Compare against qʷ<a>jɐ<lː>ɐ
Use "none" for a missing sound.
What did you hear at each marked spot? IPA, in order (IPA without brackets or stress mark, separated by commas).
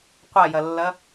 a, lː